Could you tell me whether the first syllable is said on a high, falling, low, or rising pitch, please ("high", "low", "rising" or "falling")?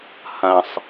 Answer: low